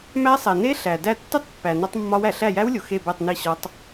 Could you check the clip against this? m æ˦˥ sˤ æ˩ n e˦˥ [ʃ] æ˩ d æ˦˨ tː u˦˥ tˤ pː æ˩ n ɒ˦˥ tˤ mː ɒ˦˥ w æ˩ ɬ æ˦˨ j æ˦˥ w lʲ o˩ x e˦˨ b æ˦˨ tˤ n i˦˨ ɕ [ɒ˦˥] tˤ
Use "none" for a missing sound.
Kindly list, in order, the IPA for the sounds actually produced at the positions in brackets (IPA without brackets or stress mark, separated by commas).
ɬ, ɒ˦˥